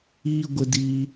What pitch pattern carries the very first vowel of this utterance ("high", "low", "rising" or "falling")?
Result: high